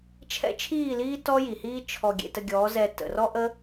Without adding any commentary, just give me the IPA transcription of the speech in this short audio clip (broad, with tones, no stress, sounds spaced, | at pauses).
t͡ʃʰ ɛ̰˦ t͡ʃʰ iː˦˨ l iː˦ t ɔ˦ j i˨ h iː˦ t͡ʃʰ ɔ˧ ɡʲ ḛ˧ t ə˧ ɡʲ ɔː˨˦ z ɛ˧ t ə̰˨ r ɔ˦ ʔ ə˦